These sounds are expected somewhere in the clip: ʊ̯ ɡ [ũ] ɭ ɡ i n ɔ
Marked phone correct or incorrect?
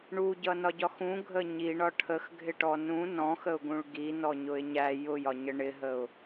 correct